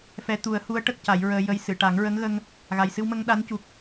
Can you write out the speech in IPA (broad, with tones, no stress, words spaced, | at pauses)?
fɛ˧˥ t̪u˨˩˦ə̯hu˧˥ə̯ ʈə˦˥k̚ca˨˩˦jɹəː˧jə˧j sɨ˨˩˨ʈa˨˩˦ŋɹə˧˥ŋɣə˧ŋ | ɣa˨˩jsɨ˧wmə˧ŋ ɗa˧˥ncu˨˩k̚